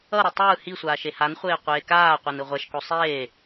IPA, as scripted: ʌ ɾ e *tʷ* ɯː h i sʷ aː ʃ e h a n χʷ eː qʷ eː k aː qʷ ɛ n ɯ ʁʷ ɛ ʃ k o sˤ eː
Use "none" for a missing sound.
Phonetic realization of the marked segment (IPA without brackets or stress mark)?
tˤ